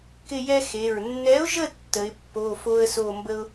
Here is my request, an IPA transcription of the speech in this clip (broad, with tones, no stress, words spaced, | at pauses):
kɪ˦˨jɛ˦ xe˩˧˩ɹ nːɛ˨˥ʊ̯ʒə˦˨ tːə˨˥ɪ̯ pːo˩˧˩ fo˦ə̯so˦˨mbə˦ʊ̯